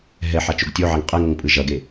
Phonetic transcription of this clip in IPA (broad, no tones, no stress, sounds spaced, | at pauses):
ɦ ɛ ħ a t͡ʃ o ɡ tʲ o ʕ a ŋ qʼ ɛ ŋ ʌ ŋ pʼ ɯ ʒ ʌ ɡ e